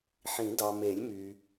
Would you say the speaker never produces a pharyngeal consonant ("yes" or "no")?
no